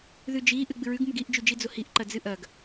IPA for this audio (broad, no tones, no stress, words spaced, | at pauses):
ðʉd͡ʒiʔɨ ɡ͡bɨɹʉɡmuɡ iʔd͡ʒʉ d͡ʒid͡zohiʔǃɐ d͡zɨʔɐɡ